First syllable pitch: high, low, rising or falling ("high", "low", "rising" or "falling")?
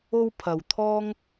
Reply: high